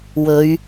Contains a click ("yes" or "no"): no